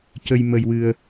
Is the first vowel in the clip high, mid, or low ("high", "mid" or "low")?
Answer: mid